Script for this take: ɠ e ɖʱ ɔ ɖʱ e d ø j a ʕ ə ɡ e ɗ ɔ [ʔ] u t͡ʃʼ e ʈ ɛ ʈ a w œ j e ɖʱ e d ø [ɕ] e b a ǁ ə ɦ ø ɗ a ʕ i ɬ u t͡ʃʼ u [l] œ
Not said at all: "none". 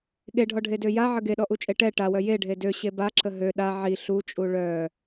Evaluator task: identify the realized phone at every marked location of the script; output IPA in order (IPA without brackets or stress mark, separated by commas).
ʔ, ɕ, ɭ